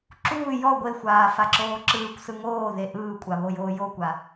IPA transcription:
ǁ uː j ɔ ɡʷ e xʷ aː f a ǁ oː ǁ ɯː kʷ s ɯ ŋ oː ð e ʔ ɯː kʷʼ a β o j oː j o kʷ a

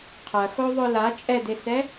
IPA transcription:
qʰ ɐ x o ðˤ ʊ l a t͡ʃʼ ɛ d e s ɛ

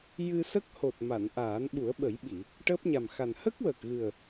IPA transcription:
j ɨ˧ s ə˦˥ k̚ h o˨˩ t̚ m a˨˩˨ n ʔ aː˨˩˦ n ɓ u˨˩˦ ə̯ ɓ ə˨˩˦ j ɓ i˨˩˨ | ʈ əː˦˥ p̚ ɲ a˨˩ m x a˨˩ n h ə˦˥ k̚ w əː˨˩ k̚ ɣ ɨ˨˩ ə̯

